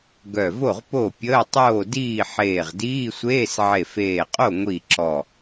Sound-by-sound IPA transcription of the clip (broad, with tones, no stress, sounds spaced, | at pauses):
ɡ œ˧˩ v o˥˩ ʁ p o˥˩ pʲ əː˧˥˧ tˤ oː˥˩ d iː˥˩ ħ eː˧˩ ʁ d iː˧˥˧ sʷ eː˧˥˧ s ʕ e˧˩ f eː˧˩ qʼ o˥˩ ŋʷ i˥˩ ǁ ɔ˧˩